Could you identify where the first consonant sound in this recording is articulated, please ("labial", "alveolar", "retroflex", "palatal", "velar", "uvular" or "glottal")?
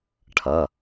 retroflex